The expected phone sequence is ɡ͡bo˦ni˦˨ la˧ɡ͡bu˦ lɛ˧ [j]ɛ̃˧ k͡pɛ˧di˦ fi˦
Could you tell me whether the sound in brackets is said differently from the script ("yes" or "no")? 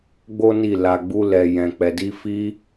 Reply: no